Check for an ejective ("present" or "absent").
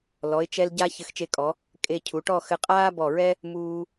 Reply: present